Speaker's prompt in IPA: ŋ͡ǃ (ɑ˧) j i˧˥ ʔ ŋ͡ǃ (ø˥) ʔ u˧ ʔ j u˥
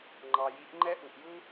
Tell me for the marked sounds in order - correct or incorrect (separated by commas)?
correct, incorrect